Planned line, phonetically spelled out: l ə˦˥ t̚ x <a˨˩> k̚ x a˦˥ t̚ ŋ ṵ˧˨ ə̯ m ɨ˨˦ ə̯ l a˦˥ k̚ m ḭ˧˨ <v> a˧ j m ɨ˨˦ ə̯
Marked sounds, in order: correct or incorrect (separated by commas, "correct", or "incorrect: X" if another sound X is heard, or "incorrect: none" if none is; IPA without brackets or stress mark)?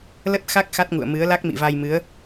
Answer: incorrect: a˦˥, correct